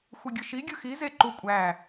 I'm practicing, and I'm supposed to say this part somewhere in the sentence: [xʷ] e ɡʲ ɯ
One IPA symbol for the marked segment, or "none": xʷ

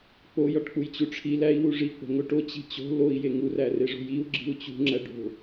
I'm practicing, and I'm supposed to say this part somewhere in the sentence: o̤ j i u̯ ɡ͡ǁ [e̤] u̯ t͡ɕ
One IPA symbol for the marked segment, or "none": i̤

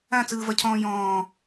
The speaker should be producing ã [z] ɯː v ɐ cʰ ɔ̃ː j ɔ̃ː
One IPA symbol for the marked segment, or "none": t͡s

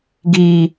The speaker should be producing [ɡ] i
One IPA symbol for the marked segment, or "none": ɡ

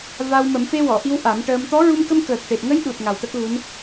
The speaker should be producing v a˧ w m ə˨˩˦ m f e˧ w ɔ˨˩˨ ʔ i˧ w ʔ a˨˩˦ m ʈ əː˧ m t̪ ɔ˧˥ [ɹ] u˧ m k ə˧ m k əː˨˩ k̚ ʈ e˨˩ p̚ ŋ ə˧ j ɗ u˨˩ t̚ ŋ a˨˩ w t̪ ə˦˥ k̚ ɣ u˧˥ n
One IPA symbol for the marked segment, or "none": ɹ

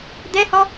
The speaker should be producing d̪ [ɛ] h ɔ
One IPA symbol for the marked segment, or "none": ɛ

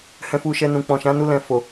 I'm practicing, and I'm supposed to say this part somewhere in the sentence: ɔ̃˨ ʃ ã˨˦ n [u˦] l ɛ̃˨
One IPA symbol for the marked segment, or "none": u˧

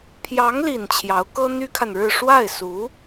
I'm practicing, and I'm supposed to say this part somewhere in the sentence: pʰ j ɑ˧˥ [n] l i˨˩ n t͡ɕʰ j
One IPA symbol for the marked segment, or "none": ŋ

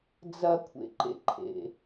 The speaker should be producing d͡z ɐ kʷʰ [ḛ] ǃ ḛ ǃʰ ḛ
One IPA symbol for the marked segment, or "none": ḛ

